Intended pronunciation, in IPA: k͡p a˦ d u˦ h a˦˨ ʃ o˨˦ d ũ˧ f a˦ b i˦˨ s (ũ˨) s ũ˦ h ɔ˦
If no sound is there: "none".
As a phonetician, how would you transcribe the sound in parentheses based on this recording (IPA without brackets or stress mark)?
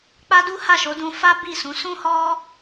ũ˨˦